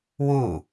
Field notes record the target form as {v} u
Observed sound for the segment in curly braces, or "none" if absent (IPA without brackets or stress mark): w